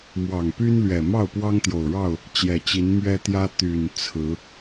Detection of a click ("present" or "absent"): absent